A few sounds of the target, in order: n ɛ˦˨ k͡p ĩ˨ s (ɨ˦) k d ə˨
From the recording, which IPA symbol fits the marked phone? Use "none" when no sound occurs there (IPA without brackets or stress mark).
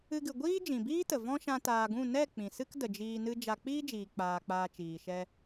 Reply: ɨ˦